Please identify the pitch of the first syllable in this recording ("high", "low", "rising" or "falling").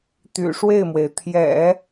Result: low